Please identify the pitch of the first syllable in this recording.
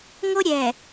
high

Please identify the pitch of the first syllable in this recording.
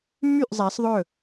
falling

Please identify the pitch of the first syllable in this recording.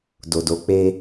low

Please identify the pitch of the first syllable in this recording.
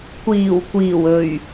low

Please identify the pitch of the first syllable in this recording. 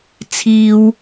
high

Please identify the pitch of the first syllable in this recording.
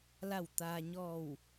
falling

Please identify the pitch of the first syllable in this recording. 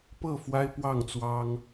falling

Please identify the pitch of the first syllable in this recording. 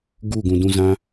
falling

